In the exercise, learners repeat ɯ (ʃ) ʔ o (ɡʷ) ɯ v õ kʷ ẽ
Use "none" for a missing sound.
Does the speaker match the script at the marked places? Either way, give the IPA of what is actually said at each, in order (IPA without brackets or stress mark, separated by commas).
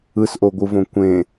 s, ɡʷ